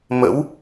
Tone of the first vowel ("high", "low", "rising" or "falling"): rising